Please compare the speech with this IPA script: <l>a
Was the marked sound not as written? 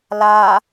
no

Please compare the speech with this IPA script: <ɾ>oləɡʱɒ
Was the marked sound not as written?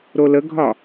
no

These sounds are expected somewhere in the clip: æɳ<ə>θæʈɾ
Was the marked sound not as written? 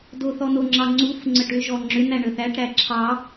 no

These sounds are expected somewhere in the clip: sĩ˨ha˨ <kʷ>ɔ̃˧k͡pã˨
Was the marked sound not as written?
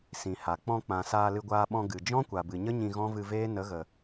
yes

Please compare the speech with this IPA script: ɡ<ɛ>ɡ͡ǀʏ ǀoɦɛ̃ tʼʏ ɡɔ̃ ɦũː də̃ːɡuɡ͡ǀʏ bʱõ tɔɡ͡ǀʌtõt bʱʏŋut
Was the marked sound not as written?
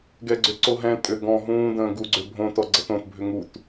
no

